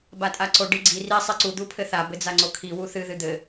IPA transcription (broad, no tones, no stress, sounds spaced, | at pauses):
b a tʼ a ǀ o ɖ i ɡ͡ǀ i r i sˤ i ǀ u d̪ u pʰ ɘ θ a b ɘ d͡z a ŋ͡ǀ o kʰ i w u θ ɨ ð ɨ d̪ ɘ